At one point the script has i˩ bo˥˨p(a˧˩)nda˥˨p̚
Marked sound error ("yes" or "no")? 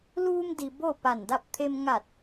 no